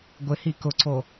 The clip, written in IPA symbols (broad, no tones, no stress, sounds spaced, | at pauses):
ɡʷ ɪ h i k ʊ ǀ o